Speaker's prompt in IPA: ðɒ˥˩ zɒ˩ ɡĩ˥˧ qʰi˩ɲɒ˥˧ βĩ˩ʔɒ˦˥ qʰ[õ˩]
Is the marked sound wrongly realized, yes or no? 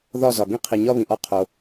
yes